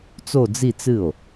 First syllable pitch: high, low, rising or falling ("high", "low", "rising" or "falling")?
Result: falling